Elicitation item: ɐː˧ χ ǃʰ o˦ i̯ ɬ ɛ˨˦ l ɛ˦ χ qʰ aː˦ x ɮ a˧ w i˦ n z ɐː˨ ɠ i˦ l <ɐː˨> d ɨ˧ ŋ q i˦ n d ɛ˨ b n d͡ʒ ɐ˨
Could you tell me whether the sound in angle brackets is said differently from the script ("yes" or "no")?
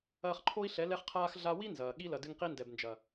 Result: yes